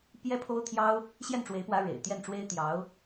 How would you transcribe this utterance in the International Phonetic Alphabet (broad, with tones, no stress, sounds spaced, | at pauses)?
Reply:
p j ɛ˥ pʰ o˥ ʊ̯ t̪ʰ j ɑ˥ ʊ̯ | ɕ j ɛ˥˩ n ʈ͡ʂ w e˧˥ ɪ̯ p w ä˧˥ ɻ ḛ˨˩ ɪ̯ t̪ j ɛ˥˩ n ʈ͡ʂ w e˥ ɪ̯ t̪ j ɑ˧˥ ʊ̯